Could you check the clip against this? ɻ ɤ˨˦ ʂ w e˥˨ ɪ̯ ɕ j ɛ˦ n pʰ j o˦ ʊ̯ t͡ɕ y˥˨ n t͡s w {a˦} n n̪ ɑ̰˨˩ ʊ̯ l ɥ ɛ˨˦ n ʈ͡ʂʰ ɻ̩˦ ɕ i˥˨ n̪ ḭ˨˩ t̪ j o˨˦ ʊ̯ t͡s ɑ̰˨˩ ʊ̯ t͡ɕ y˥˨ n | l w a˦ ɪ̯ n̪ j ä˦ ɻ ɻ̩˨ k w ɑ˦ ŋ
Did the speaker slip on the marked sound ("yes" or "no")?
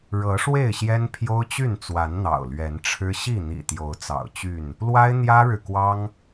yes